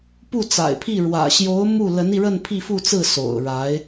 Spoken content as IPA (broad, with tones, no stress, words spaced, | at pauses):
pu˥˩t͡sa̰˨˩ɪ̯pʰi˥˩ ɻwä̰˨˩ɕjo˧˥ʊ̯ mu˥˩ lə˧˥ni˧ ɻə˥˧npʰi˥˧fu˥˧t͡sɹ̩˥˩ so̰˨˩ʊ̯ ɻa˧˥ɪ̯